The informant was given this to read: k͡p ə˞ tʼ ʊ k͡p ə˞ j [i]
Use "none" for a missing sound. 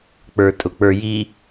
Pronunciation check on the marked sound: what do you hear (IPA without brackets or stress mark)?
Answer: i